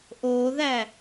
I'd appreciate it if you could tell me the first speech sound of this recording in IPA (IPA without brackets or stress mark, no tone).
ʔ